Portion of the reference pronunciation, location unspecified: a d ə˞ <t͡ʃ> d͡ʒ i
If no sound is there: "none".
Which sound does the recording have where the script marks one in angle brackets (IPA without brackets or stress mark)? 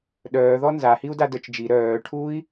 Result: t͡ʃ